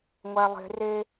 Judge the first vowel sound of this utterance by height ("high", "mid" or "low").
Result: low